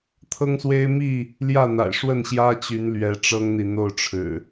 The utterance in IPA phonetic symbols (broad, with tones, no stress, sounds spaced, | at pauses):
t̪ʰ ɤ˦ ŋ s w e˦ ɪ̯ m i˥˨ | l j ä˥˨ n̪ a̰˨˩ ɪ̯ ʂ w ə˥˨ n ɕ j ä˦ t͡ɕ y˨˦ n l ɥ ɛ˨˦ ʈ͡ʂ ɤ˦ ŋ n̪ i˨ n̪ o˥˨ ʊ̯ ʈ͡ʂʰ ɻ̩˨˩